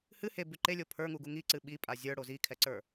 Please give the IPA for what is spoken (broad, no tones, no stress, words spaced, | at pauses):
hɨ hebʉ ǃelʲo pʰə˞ŋuɡu ŋiǀɨ ɓipʼa zʲə˞ɽo zikʰɛǀə˞